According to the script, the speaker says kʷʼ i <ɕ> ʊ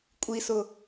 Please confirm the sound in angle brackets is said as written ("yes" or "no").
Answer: no